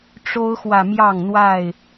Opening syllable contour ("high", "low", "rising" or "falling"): high